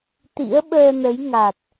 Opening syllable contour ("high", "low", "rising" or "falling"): rising